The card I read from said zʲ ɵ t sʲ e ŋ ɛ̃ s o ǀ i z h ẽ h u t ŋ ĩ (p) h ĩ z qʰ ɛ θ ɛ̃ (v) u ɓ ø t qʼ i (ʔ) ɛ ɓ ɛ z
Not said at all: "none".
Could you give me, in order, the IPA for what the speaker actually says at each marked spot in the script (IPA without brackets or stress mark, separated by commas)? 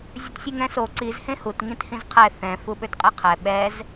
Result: t, f, qʰ